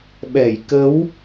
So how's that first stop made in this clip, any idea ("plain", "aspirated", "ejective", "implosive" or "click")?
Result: implosive